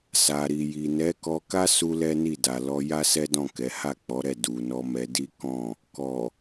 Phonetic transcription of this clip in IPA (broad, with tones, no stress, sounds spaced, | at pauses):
s a˨ ɾ i˨ j i˨ n ɛ˨˦ k ɔ˧ k a˦ s u˦ l ɛ˦ n i˦˨ d a˨ l ɔ˧ j a˦ s ɛ˦ d ɔ̃˦˨ k ɛ˨˦ h a˦˨ k͡p ɔ˨˦ ɾ ɛ˦˨ d u˨ n ɔ˧ m ɛ˧ d i˦ k ɔ̃˦˨ | k ɔ˨